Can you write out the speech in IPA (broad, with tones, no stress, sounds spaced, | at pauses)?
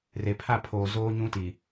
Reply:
r e˨ pʰ a˦˨ pʰ oː˨ z oː˦ ɲ ũ˦ t i˨